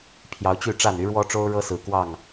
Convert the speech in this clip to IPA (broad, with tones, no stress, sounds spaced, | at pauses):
pʰ j ɑ˨˦ ʊ̯ t͡ɕ y˥˨ ʈ͡ʂ a˥˨ n y˨˦ ɻ w ɔ˦ ʈ͡ʂ o˦ ʊ̯ ɻ ɤ˦ s ɹ̩˨˩ k w ɑ˥˨ ŋ